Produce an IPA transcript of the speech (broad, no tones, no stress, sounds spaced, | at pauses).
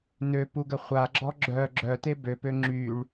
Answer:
n ø p u ɡ ə χʷ a ɡ͡ǁ ɔ ɡ͡ǁ œ ɡ͡ǁ œ t e b ø p ø ŋ͡ǁ y ɭ